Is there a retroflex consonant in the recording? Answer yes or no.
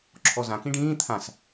yes